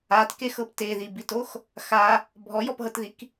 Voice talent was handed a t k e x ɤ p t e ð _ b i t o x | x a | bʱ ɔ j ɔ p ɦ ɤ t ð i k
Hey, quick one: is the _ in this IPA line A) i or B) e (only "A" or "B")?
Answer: A